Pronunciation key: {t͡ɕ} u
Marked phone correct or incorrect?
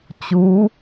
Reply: correct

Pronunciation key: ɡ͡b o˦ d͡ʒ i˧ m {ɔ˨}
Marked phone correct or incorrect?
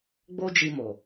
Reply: incorrect: o˨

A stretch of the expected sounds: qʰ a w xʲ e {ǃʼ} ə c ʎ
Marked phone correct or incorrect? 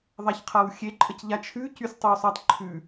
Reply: correct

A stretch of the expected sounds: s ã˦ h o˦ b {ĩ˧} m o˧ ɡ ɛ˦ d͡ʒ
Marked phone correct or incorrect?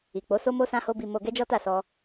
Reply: incorrect: i˧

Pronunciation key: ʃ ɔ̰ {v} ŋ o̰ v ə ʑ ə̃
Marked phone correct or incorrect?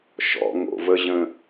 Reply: incorrect: none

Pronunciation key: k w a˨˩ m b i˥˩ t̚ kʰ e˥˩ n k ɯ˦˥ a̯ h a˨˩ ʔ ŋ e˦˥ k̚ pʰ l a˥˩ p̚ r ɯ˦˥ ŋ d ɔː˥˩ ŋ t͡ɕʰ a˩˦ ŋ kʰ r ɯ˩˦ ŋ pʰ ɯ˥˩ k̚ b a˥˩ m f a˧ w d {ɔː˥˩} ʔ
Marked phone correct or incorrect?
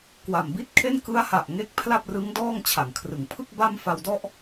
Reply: incorrect: ɔ˥˩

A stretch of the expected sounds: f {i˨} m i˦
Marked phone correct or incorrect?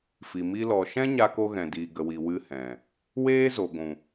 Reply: correct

